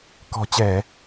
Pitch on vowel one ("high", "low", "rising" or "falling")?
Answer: low